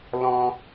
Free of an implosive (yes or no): yes